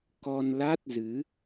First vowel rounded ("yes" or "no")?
yes